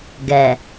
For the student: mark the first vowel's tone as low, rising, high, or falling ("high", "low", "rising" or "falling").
low